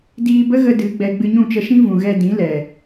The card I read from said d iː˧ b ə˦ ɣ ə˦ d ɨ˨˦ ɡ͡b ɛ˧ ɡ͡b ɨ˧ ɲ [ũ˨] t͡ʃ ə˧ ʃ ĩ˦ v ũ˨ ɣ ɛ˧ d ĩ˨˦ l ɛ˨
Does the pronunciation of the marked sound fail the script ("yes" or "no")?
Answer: yes